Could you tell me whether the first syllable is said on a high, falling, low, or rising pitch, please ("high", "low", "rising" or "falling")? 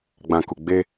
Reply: low